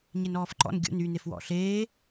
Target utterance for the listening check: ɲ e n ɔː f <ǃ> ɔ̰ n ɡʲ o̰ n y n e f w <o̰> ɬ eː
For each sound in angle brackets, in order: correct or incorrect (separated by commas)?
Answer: correct, incorrect